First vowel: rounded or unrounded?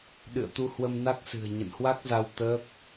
unrounded